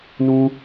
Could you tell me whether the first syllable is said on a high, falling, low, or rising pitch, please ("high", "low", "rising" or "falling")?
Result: high